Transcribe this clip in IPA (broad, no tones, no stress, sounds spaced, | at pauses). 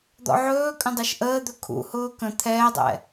d̪ ɔ̰ ʕ ɵː kʼ ə̃ dˤ ɯ ʃ ʔ əː d̪ ɵ kʰ ṵ h ʊː k ə̃ t̪ʰ ɛː dˤ ɛ̰